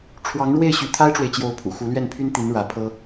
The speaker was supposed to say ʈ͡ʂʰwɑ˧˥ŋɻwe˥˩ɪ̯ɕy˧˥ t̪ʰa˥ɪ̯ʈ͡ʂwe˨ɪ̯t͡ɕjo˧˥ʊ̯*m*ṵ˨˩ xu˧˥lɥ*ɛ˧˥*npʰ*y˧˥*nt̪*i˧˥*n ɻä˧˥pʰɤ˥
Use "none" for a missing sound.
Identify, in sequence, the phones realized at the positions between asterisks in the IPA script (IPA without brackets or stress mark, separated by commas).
pʰ, ɛ˥˩, y˥, i˧˥